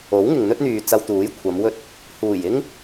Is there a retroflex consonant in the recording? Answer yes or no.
no